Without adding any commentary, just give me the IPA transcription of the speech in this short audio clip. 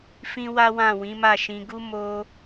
f ĩ˦ w a˦ w ã˦˨ w ĩ˨˦ m a˦˨ ʃ ĩ˧ ɡ u˦ m o˧

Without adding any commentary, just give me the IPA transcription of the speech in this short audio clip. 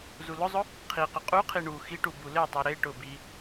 z u l ʊ zˤ ʊ | qʰ i q ʊ qʼ u qʰ i ɳ u x i ʈ u b u l e tˤ i ɾ e ʈ ʊ b i

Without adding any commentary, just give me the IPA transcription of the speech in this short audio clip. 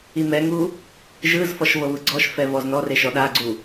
i m ɛ ŋ u | ʒ ɯ z f ɔ ʃ v ɤ β ɯ ɡ͡ǀ ɔ ʃ f ɛ v ɔ z n ɔ r e ʃ ɔ ɗ a ɡ͡ǀ u

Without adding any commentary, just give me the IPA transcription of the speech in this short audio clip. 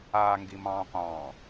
a ŋ ɡ i m ɑ̃ː qʷ ɑ̃ː

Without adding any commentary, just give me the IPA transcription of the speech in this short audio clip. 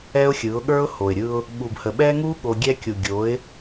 ɛ˦ ʊ̯ xʲ ɯ˨˦ ʊ̯ ɠ ə˞˦ ʊ̯ h o˨ ɪ̯ ɾʲ ɯ˧ ʊ̯ | ɓ u˨ b h ə˨ ɓ ɛ˦ ŋ u˦ ɠ o˧ ɡʲ ɛ˦ kʲ u˨ ɡʲ o˨˦ ɪ̯

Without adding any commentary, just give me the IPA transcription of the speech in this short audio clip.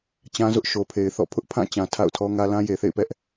t͡ɕ ã˦ z ʊ˦ ʔ ʃ o˨ pʰ e˨ ɪ̯ θ ɔ̰˦˨ pʰ ʊ˦ ʔ pʰ ã˦˨ t͡ɕ ã˨ tʰ a̰˦˨ ʊ̯ tʰ ɔ˦ ŋ ä˦ l ã˦ j e˨ θ ḛ˦˨ ɪ̯ p ɛ˦ ʔ

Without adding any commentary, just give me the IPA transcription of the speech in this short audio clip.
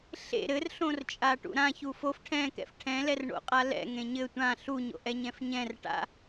ɬ ḛ ɾ ɘ r ɬ õ r t͡ʃʼ a ʈ ṵ ɾ ã ç u f o f ʈʰ ɛ̃ k ɛ̰ f ʈʰ ɛ̃ l ɛ r ɳ o̰ qʼ a l ɛ̰ ŋ ẽ ɲ ɘ tʷ ã ɬ u ɲ o̰ ʔ ɛ ɲ ɛ̃ f ɲ ɛ̃ r ʈ a̰

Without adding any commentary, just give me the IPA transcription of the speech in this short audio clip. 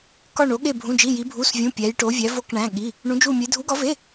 k ɒ˥˧ ɳ o˧˥ ɠ e˥˧ bʱ ũ˧˥˧ d͡ʒ i˧˥˧ j i˧˥ bʱ u˧˥˧ s vʲ ũ˧˥˧ pʲ æ˧˥ j ʈ o˧˥ vʲ æ˧˥ v o˥˧ k ɳ æ̃˧˥˧ ɠ i˧˥˧ | ɳ ũ˧˥ d͡ʒ u˥˧ mʲ e˧˥ dʱ u˧˥ ɡ ɒ˧˥ v e˧˥˧

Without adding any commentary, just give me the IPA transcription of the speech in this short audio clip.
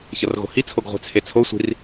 ç ʌ r ɣ o̤ h i t͡sʰ o ɡ ʁʷ ɛ̤ t͡sʰ e t͡sʰ o sʷ i̤ r

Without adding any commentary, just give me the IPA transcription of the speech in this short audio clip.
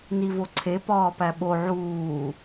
n i v o ǀʰ e p ɒː p æ ɓ o ʕ uː

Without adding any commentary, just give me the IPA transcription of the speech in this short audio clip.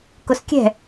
k ʊ s kʲ ɛ̤

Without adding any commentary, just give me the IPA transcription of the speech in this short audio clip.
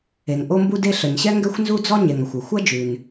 e˩ ŋ ʔ o˥ m b u˥ d e˥ ɬ ə˩ ɲ ɕ ɛ˥ ŋ ɡ ɛ˥ xʷ n z u˥ d͡z ɔ˥ ɲ e˩ ŋ ɐ˩ xʷ ʉ˩ xʷ ɐ˥ d͡ʒ ʉ˩ n

